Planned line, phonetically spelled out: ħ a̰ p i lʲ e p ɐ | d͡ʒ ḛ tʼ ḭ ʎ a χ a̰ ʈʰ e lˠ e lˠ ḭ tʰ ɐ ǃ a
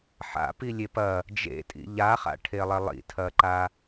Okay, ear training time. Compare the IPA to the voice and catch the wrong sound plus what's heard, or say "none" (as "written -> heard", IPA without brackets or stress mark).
none